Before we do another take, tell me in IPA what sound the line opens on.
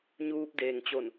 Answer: ɲ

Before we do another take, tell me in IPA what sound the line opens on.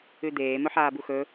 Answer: ʉ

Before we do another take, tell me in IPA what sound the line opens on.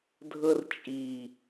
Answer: dʱ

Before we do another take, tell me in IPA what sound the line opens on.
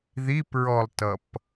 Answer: ð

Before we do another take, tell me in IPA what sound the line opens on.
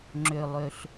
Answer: ŋ͡ǁ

